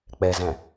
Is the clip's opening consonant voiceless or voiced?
voiceless